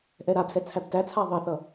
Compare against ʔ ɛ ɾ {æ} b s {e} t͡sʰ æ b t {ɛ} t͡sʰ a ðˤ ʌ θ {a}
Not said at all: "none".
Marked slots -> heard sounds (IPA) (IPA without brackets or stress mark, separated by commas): a, ɛ, æ, ʌ